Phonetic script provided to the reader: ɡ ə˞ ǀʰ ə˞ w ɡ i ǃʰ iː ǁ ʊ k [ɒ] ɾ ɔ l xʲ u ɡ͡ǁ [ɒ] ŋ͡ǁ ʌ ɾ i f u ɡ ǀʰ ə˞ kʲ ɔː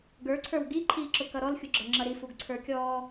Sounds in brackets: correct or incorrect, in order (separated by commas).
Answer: incorrect, incorrect